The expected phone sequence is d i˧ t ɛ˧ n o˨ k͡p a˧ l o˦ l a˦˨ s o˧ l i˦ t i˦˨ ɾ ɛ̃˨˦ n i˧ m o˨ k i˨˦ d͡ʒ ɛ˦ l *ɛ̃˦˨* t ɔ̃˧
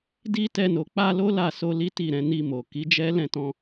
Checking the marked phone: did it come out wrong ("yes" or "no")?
no